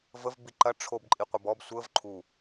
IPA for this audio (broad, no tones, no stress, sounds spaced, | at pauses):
v ə v b i ǃ ɐ ʈ͡ʂʰ o b ǃʼ i qʷ ɐ b ɔ b sʷ ə v ǃʰ u